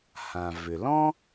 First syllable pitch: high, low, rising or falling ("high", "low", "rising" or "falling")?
low